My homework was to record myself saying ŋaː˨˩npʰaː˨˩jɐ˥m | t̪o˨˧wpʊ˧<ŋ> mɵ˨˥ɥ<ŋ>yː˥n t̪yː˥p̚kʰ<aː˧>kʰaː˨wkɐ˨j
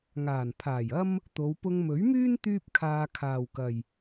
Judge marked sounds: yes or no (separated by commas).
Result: yes, no, yes